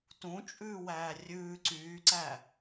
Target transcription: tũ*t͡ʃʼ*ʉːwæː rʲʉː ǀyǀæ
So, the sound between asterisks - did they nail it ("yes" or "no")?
yes